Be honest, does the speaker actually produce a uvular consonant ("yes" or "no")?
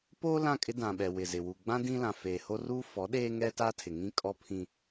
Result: no